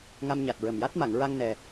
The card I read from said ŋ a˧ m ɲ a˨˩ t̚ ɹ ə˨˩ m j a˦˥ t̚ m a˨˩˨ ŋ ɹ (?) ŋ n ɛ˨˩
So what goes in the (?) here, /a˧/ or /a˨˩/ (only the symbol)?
a˧